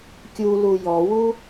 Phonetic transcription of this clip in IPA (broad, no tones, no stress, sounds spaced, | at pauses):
kʲ u l u j ɔ w u